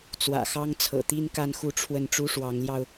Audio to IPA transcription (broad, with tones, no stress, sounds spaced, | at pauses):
t͡s w ä̰˨˩ x ɑ˥ ŋ t͡sʰ ɤ̰˨˩ t̪ i˥ n k a˥˧ n x u˥˧ ʈ͡ʂʰ w ə˥˩ n ʈ͡ʂ u˥ ʂ w ɑ˧˥ ŋ l j ɑ˧ ʊ̯